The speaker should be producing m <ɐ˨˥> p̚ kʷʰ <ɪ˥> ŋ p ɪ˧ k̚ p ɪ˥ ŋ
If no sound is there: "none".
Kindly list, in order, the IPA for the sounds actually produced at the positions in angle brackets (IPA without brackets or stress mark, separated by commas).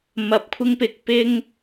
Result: ɐ˧, ɪ˥